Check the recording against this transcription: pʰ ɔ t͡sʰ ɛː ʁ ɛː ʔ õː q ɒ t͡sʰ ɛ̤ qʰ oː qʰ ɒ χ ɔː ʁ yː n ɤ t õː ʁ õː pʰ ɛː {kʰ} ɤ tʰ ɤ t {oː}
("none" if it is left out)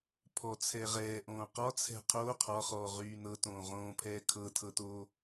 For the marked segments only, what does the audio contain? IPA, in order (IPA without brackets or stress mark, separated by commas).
kʰ, oː